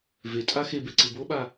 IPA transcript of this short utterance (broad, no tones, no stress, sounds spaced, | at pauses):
v e tʼ a x e b e ǀ ɯ b o ɓ a